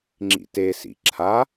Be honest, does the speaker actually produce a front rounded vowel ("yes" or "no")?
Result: no